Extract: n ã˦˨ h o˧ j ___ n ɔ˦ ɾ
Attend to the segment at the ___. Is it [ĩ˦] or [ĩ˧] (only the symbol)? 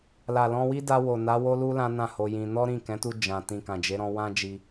ĩ˧